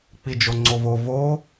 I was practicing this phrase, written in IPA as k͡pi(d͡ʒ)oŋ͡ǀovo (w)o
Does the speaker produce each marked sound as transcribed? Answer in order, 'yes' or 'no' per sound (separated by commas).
yes, no